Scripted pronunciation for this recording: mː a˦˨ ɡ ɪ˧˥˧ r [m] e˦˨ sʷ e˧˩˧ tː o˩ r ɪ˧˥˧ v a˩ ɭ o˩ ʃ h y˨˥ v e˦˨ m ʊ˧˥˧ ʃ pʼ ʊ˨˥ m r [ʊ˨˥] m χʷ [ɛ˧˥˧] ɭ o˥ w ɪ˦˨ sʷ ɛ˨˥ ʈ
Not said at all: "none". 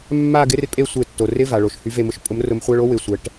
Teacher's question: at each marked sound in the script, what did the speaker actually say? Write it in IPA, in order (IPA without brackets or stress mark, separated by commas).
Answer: pʼ, ʊ˨˥, ɛ˧˥˧